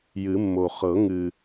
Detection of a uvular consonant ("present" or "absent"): present